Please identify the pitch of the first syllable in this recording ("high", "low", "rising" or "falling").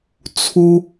high